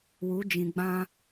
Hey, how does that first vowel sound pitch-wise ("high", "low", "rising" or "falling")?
rising